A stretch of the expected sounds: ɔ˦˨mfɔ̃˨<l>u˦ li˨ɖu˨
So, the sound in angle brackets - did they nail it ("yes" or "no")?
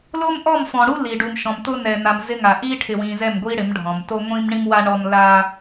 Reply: no